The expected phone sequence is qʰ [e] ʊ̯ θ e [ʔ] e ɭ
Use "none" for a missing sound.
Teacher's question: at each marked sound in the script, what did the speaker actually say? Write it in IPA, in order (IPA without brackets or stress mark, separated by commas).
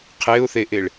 e, ʔ